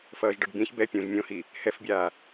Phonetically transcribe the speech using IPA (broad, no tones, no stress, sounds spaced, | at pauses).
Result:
f ʌː ʒ ɖ ʌ ɖ b ĩ ç b ɛ pʲ ũ ʒ mʲ õ h i | h ɛ f bʲ aː